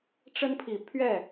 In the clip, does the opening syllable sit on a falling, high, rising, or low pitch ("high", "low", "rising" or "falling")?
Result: high